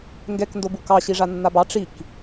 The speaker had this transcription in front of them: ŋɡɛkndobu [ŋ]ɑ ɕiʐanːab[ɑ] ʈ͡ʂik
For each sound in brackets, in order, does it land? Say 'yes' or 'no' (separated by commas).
no, yes